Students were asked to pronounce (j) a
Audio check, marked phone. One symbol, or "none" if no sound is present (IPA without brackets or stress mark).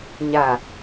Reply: ɲ